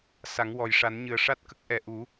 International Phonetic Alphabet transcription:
sa˨˩˦ŋ wɔ˨˩jʂa˨˩˦nɲɨ˨˩ə̯ ʂa˦˥t̚kə˦˥k̚ ʔɛ˨˩ ʔu˨˩˦

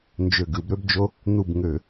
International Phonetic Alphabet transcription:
nd͡ʒø˧˩ɡɯ˧˩˧bɾø˦bd͡ʒo˦ | n̪u˧˩bŋø˧˩˧

